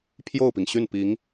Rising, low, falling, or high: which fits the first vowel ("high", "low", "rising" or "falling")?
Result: falling